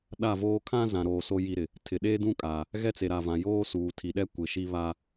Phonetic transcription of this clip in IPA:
ɗ a˦˨ v oː˦ kʰ ã˦ z ã˨ ɾ oː˨ s o˦ j i˦ ɾ ɪ˨ | tʰ ɪ˨ ɗ eː˦ d ũ˦ kʼ aː˨ | ɣ ɛ˦ t͡s e˨ ɾ a˨ v ã˨ j oː˦ s uː˨ tʰ i˨ ɗ ɛ˦ kʷ ɪ˨ ʃ i˦ β a˦

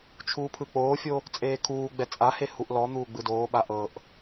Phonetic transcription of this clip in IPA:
t͡ʃʰ uː pʰ ɯ k͡p oː fʲ o | t͡sʼ eː kʰ uː ɡ͡b ɛ t͡sʼ a h e h u ʔ l ɔ n̪ uː ɡ͡b ɯ d oː ɓ a ʔ ɤ ʔ

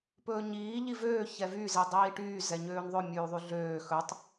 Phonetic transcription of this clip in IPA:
p ɵː ɲ iː ʎ i v øː ç ɛ v y z i dˤ iː ʈ yː z ɛ ɲ øː n ðˤ ɵ mʲ ʉː ðˤ y ɮ øː x ɵ tˤ

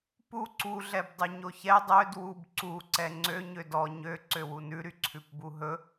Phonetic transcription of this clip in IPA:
p u ǀ u ɮ ɛ b dˤ ʉ ɲ o ç ɛ dˤ ø d w u b ǀ u ǀ ɛ ŋ͡ǀ ø ɲ ø d ɔ ɲ ø ǀ ø w u n ʉ ɾ y ǀʰ ʉ p b u ɦ ɵ

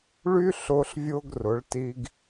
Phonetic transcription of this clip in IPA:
ɭ y˥ ɬ ʊː˧ ɬ vʲ ʊː˧ ɡ r ʊ˩˧ ɭ t i˧ ɡ

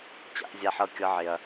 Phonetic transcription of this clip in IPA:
t͡ɕ a̰˦ ʔ zʲ a˦ ħ ɤ˦ kʲ ɤ˦ ʕ ɪ˧ ɐ̯

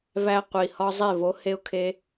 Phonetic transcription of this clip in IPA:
v æ˦ qʷ i˨ h ɒ˦ zˤ e˦˨ v o˨˦ h e˦ ʊ̯ kʰ e˧

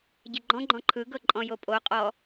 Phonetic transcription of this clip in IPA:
ɟ e ɡ͡ǃ ɔ̃ ɡ͡ǃ ɔ̃ ǃʰ ɯ ɡ ɤ ǃʼ ɔ̃ j o pʼ o qʼ ɔ

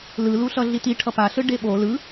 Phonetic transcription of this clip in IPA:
l ɯ l u ɬ ʌ ɮ i t i ʈʰ ʌ p a ɬ ɯ ɖ e ɓ o l ɯ

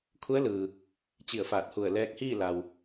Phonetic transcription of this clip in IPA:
kʰ u˧˥ ə̯ l ɯː˩ | t͡ɕ i˧˩ ə̯ f aː˧˩ t̚ h u˧˩ ə̯ l ɛː˧ k̚ h iː˥˨ l a˩ w

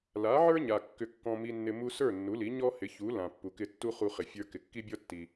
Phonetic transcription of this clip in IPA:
l a˩˥ ʕ ə˞˥ ɲ a˩ kː ʏ˧ kː ɔ̃˧ m i˧ nː ɪ˧ m u˥ s ə˞˥˩ nː u˩˥ l i˩˥ ɲ ɔ˥ h ɪ˩˥ ç u˩˥ l ã˩ pː u˩ k ɪ˧ tː u˥ χ u˧ χ ɪ˩ fʲ ə˞˧ k ɪ˩ kː i˥ bʲ ɔ˥ tː i˩

